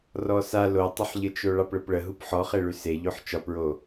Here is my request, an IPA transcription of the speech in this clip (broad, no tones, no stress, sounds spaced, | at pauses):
r ɔ s a l o tˤ ə ħ ʎ ə t͡ʃ o ɭ ɑ p ɭ ə p ɭ ə ɦ u p ħ ɔ χ e ɭ ʉ s e ʎ o ħ t͡ʃ ɒ p ɹ o